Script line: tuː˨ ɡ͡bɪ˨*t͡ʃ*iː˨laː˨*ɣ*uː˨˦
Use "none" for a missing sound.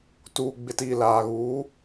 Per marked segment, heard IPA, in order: t, ɣ

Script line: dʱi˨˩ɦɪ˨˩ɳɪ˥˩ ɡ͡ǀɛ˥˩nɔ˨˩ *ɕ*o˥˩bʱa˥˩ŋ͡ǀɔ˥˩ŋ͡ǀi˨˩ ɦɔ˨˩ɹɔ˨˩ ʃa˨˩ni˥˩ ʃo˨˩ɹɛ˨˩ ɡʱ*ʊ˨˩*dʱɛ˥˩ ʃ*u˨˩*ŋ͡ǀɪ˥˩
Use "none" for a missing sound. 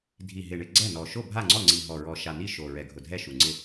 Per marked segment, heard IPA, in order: ʃ, ʊ˨˩, u˨˩

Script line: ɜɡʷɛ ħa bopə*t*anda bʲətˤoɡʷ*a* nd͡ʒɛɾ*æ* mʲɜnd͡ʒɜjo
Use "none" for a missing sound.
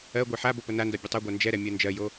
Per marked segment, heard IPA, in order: n, a, ɛ

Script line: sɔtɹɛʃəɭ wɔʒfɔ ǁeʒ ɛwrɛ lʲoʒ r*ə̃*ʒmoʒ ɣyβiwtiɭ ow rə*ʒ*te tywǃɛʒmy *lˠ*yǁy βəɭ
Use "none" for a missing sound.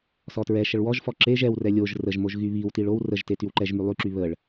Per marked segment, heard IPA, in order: ə, ʒ, lˠ

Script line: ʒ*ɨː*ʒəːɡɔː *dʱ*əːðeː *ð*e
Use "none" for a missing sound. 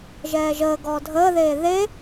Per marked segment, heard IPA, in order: ɛː, dʱ, ð

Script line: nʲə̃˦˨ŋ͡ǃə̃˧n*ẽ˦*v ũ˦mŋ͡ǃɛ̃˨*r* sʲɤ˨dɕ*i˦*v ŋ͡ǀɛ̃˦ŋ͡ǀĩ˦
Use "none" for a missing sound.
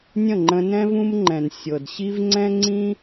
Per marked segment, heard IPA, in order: ɛ̃˦, n, i˦

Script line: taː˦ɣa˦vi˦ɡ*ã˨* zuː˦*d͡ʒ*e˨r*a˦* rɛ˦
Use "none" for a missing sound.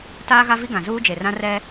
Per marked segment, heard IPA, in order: ã˨, d͡ʒ, ã˦

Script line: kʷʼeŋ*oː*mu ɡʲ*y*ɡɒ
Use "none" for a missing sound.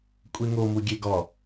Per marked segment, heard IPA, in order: o, e

